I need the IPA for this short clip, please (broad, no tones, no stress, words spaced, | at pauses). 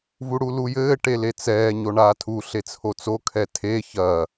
vuɽulujɘː ʈelet͡sɛː ɲoɳaːtʰu ɬet͡sʰot͡so kʰɛtʰe çɐ